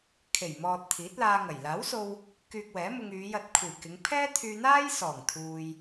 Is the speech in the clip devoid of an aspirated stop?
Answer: no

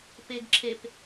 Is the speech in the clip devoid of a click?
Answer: no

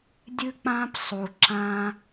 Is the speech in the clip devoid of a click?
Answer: no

